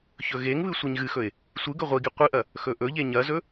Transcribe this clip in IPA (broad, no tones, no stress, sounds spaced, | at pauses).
ç ɵ ɣ e ŋ β ɨ sʷ i ɲ ɣ ɨ x ɵ ɪ̯ | sʷ ɨ ɡ ɵ ʁʷ i ɡ i qʷ ɨ ʔ ɐ | x ɵ ʔ ɵ ʎ e ɲ ɐ z ɵ